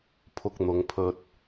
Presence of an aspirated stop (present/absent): present